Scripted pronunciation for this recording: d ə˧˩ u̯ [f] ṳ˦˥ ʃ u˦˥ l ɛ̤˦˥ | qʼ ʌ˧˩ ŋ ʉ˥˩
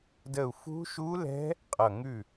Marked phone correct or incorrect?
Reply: correct